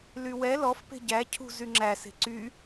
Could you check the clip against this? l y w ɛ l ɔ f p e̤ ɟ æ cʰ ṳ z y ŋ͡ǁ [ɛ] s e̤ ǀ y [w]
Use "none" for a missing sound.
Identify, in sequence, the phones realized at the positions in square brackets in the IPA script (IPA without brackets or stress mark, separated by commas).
æ, none